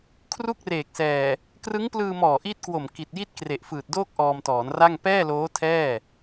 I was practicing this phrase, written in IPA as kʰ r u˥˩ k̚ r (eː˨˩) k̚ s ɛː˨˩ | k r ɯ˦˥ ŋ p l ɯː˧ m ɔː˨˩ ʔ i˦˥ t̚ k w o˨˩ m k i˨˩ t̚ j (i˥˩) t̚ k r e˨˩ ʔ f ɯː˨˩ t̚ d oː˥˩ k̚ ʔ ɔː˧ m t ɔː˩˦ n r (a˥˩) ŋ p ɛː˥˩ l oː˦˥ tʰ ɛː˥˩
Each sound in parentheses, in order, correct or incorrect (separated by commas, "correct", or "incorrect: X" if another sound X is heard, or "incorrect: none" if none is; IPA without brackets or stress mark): correct, correct, correct